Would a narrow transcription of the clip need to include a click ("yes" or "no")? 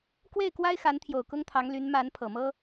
no